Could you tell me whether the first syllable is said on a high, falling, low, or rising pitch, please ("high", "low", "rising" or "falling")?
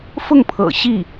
falling